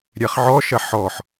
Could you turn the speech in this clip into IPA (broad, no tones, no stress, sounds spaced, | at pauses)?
ɾʲ ɛ χ ʕ ɔ ʃ ɐ ħ ɔ ħ